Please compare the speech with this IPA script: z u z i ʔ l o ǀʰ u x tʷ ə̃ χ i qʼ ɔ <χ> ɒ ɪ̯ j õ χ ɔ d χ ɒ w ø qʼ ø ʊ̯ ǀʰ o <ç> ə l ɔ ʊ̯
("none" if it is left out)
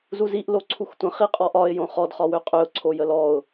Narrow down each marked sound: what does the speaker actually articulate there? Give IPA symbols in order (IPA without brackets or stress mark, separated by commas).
ʔ, j